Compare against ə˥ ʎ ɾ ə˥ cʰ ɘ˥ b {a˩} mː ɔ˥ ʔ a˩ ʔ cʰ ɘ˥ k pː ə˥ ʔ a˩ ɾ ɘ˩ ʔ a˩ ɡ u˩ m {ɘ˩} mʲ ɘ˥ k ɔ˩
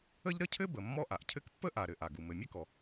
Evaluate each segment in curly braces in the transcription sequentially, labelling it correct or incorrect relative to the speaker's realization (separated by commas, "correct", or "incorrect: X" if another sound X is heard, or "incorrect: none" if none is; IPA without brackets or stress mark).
incorrect: ə˩, correct